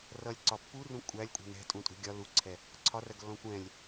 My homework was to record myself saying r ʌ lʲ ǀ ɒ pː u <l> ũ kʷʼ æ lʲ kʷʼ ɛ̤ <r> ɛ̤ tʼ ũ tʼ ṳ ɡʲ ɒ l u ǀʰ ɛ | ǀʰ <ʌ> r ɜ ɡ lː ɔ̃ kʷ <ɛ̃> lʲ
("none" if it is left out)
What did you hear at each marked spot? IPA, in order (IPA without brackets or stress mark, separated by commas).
r, n, ɒ, ɛ̃